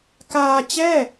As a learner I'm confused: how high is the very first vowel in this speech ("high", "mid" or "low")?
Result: low